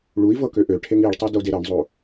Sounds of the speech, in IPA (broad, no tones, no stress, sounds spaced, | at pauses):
ɭ u i̯ v ɤ k ø ʔ ø ʈʰ e ŋ i ɭ tˤ ɤ d o d e ɾ ɤ ɳ zˤ o